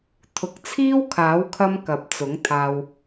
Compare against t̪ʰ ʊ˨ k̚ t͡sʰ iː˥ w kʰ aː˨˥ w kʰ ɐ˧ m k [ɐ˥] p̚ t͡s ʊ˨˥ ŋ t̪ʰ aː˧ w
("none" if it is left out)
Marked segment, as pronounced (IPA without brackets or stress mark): ɐ˨